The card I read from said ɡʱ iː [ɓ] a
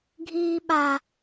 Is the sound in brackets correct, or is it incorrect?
correct